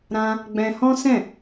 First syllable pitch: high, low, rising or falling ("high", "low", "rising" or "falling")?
high